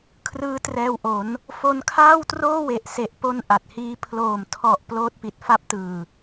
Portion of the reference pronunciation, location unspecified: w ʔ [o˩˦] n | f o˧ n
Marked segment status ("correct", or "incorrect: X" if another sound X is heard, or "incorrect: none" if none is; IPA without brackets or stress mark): correct